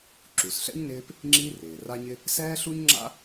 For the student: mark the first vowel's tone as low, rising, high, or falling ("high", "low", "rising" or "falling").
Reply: low